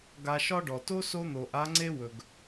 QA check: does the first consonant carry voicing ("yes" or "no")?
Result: yes